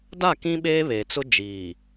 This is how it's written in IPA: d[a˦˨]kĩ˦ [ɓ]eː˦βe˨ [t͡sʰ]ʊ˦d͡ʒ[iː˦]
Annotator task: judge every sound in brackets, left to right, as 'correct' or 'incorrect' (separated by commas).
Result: correct, correct, incorrect, incorrect